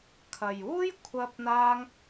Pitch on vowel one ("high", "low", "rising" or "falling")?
low